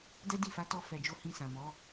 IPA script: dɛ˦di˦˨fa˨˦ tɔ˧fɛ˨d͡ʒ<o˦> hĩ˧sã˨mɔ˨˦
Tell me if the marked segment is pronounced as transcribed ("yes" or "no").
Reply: no